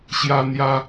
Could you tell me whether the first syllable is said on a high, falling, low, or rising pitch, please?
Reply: high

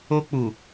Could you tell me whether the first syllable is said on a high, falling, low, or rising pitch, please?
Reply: high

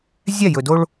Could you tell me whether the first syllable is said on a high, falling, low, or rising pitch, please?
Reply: falling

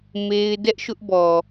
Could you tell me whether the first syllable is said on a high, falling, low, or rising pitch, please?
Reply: high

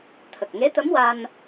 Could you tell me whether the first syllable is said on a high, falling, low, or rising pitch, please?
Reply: low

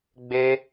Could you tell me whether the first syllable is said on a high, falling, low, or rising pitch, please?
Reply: high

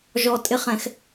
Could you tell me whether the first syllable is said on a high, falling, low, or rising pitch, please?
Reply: high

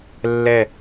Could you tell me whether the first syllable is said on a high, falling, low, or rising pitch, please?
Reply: falling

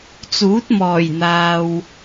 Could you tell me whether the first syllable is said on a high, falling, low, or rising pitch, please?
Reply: rising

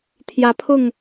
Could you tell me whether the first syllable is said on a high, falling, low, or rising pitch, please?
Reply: rising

